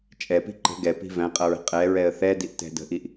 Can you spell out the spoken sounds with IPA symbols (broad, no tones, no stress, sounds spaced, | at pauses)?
t͡ʃʼ ɛ p i̤ ǃ ə̤ ɡ ɛ p i̤ v æ̃ qʼ ʌ ɹ ə̤ qʼ ɛ ɹ ɛ ə̯ θ ɛ d i ʔ t ɛ̤ d ə̤ ʔ i ʔ